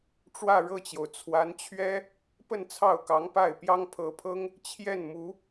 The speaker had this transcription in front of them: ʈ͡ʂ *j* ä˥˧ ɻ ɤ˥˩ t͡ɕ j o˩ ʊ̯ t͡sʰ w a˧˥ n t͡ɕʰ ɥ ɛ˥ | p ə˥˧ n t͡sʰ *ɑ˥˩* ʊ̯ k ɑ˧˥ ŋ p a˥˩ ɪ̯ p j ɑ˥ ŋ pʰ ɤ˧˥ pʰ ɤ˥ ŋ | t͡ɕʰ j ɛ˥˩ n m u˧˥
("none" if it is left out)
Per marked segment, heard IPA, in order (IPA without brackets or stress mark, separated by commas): w, ɑ˥˩